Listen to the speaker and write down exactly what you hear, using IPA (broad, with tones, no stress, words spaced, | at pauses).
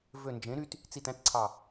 vø˨˩nd͡ʒẽ˩˧ ɾy˧t | t͡si˨˩tæ̃˧tǀʰɑ˨˩